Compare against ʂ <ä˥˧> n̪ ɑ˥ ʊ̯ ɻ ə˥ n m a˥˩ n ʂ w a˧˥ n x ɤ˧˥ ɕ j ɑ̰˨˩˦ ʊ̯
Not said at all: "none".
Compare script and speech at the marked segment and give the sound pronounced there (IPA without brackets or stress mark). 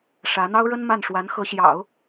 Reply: ä˧˥